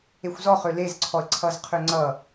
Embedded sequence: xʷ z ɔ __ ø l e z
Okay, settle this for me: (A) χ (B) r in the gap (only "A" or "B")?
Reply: A